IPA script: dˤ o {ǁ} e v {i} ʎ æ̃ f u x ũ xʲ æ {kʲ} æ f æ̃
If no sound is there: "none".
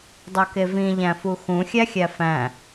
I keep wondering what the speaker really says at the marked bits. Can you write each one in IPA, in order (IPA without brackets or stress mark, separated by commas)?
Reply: k, ĩ, xʲ